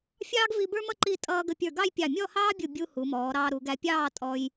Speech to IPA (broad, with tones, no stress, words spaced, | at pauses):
fʲɑː˥ɡvi˧bə˞˥mʌ˥˧ ǃi˥˧ tʼʌː˧ɡə˧˩ pʲə˞˧˩ɡɑ˥˧jpʲɑ˧˩ mʲɔ˥˧hɑː˥bʲu˧˩ bʲu˧ hu˩˧mɔː˩˧ ɾɑː˧ɾu˩˧ɡæ˧pʲɑː˥˧ tʼɔ˧j